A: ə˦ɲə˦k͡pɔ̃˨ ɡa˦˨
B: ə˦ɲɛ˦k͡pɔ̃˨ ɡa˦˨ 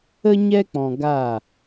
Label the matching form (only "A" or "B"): B